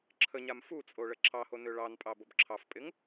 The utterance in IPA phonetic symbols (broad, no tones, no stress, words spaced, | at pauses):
ǁʰəɲam fut͡sʼo ɭəǁɑho nøɭɑnpʼɑ bobǁʰɑfpʼɪŋ